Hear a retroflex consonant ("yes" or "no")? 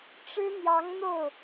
yes